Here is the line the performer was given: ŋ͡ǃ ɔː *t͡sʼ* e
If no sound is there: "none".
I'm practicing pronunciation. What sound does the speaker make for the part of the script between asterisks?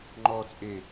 t͡sʼ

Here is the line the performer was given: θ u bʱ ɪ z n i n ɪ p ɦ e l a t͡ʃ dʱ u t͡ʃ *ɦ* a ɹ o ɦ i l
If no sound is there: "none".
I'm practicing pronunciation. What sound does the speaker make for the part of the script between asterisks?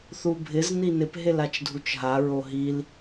ɦ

